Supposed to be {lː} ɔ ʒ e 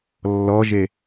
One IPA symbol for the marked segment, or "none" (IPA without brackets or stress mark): lː